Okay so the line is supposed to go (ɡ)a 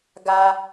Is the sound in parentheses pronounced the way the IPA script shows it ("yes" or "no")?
yes